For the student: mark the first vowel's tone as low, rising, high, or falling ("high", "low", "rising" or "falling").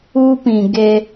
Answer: high